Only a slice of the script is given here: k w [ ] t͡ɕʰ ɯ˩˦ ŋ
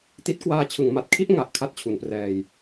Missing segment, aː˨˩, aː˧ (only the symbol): aː˧